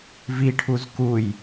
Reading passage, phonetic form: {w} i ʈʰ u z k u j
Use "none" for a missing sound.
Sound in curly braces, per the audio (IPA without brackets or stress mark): v